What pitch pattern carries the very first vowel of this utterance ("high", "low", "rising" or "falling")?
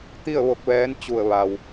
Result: falling